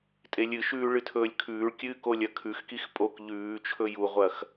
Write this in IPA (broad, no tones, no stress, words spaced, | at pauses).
tʼelʲɨʃʉː ɭɨtʰɵːlʲkʰʉːɭkʲɨːk olʲɐkʰʉxkix pʼok ʎʉːt͡ʃʰɵ juʁʷɐx